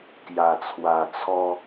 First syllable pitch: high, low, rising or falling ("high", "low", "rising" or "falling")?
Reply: low